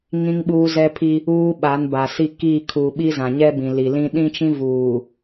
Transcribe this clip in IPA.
ŋ ĩ˦ ŋ ɓ uː˦ z ɛ˦ pʰ i˦ | uː˦ ɓ a˨˦ n b a˨ s i˦ k i˦˨ kʰ u˨ ɓ i˦ z ã˨ ɲ ɛ˦ b ĩ˨ l i˨ l ĩ˦ ɗ ĩ˦ t͡ʃ ĩ˦ v uː˨

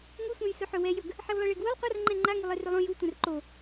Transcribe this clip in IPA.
ŋ u sʷ ɛ̃ j s ɵ ħ ɵ w ɛ j ɵ ɡ | ħ e w lˠ ɛ ɭ e ɡ w ɵ lˠ qʷ a r ŋ͡ǃ ɛ̃ ŋ͡ǃ a ŋ u lˠ e r ɵ lˠ õ j u tʷ ɛ̃ r ǃ o

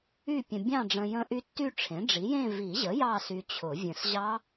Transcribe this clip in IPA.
y˥˧ pʲ ə̃˧ bʲ ɑ̃˥˧ ɖ͡ʐ ə̃˧ j ə̃˦˥ ʔ y˦˥ tː y˥˧ ʈ͡ʂʰ ẽ˩˥ ɖ͡ʐ i˩˥ j ẽ˥˧ v i˨˩˦ ʑ ə˩˥ j ɑ˥˧ s y˧ t͡ɕʰ ʊ˨˩˦ vʲ ə̃˨˩˦ s ʑ ɑ˦˥

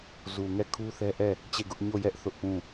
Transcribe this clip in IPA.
z u˨ ŋ ɛ˦˨ kʰ u˦ θ ɛ˦ ʔ ɛ˦˨ | t͡ɕ e˦˨ ɡ ʊ˦ ʔ ɲ o˦˨ j ɛ˦ ʔ θ ʊ˦ ʔ p ũ˦˨

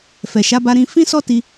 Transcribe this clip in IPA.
f ɛ˨ ʃ a˨˦ b a˧ ɾ ĩ˧ f ĩ˦ s ɔ˦ t i˧

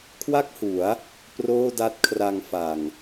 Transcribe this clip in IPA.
kʰ w a˥˩ k̚ h u˩˦ a̯ | p r oː˥˩ d a˦˥ t̚ kʰ r a˧ ŋ f a˨˩ ŋ

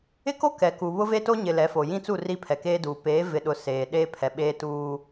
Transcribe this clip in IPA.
ɪ˦ k o˦ k ɛ˨ k u˨ β ʊ˦ v e˦ t o˦ ɲ ɪ˨ l ɛ˨˦ f o˨ j ĩ˦ t͡s u˦˨ r i˦ pʰ ɛ˨ k eː˦ d uː˨ p eː˨˦ v ɪ˨ ɗ ʊ˨ s eː˨ ɗ eː˦ pʰ ɛ˨ ɓ eː˦ t uː˦

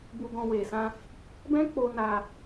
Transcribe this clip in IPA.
b u˧ ɡ ɔ̃˧ w e˨ s ã˧ | b ɛ̃˦ k͡p o˧ n a˧

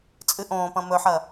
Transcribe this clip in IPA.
t͡sʼ ɨ ʔ õː p ɐ̃ m ɵ ħ ɐ

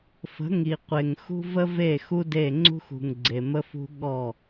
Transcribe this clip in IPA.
f ə̤˨˦ ŋ i˨ qʷ e˨ ŋ x ṳ˦ v ə˦ v e˦˨ x u˦ d e˦˨ ŋ͡ǀ ṳ˦ x ṳ˨ ŋ ɡ͡ǀ e˨ m ə˦ f ṳ˦ ɠ ɔ˦˨

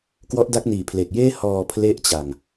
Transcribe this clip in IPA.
k w ɔ˦˥ ʔ d a˦˥ k̚ n iː˨˩ pʰ l e˨˩ k̚ j eː˥˩ h ɔː˧ pʰ l e˦˥ ʔ t͡ɕ a˨˩ ŋ

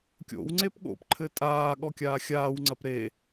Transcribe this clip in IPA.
kʲ o̰ w ŋ͡ǀ e p ɠ o̰ p ǃʰ ɘ tʼ aː ɠ ɔ kʲ aː xʲ aː w ŋ͡ǀ ɐ p ɾ e

